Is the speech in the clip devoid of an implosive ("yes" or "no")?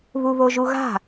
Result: yes